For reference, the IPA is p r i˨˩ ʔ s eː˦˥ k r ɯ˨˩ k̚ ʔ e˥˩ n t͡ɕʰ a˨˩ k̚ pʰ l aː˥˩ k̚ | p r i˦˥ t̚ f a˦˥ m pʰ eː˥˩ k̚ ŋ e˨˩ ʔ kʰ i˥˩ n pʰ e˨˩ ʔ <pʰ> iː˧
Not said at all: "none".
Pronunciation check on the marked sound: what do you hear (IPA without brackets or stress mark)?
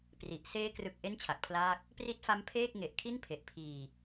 pʰ